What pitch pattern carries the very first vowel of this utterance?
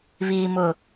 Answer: low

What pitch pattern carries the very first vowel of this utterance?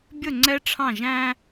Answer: falling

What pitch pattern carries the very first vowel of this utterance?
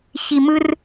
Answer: high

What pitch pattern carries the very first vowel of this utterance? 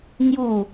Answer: falling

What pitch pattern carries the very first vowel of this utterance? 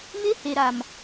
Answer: high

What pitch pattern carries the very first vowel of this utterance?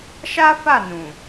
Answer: high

